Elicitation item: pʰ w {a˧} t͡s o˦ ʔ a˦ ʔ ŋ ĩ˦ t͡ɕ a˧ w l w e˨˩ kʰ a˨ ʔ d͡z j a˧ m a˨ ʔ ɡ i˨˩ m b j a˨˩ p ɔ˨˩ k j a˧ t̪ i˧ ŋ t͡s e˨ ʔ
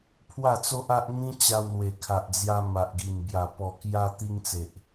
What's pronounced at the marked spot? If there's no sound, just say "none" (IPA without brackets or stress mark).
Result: a˥˧